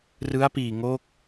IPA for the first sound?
r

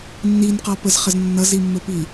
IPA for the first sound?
nː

